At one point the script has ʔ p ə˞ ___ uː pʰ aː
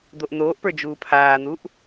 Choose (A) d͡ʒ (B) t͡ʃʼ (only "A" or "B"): A